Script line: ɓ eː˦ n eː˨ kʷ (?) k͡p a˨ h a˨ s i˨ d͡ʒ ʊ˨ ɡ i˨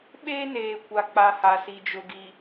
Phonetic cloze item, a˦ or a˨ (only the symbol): a˨